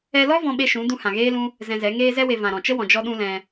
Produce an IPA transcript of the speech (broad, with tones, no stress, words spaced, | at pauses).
ɛ˧lɔ˦ vɔ̃˦ɓe˦ʃũ˨˦ dũ˧hã˨ɣeː˦lũ˦ | zɛ̃˧zɛ˨˦ ŋeː˧zɛ˧we˨ vã˨ɾɔ̃˨t͡ʃə˦ wɔ̃˨d͡ʒɔ˦ɗũ˦lɛ̃˧